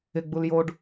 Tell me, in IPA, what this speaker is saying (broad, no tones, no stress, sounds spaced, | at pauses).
ɪ ɡ͡b u l j o ɖ